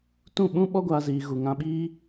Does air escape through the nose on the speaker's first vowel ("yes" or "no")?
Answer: yes